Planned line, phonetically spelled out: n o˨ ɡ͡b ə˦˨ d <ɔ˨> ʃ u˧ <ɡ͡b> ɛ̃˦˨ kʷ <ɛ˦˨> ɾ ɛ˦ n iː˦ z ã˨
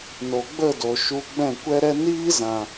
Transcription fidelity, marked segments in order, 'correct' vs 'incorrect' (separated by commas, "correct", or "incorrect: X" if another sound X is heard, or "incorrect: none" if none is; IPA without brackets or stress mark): incorrect: o˨, correct, incorrect: ɛ˦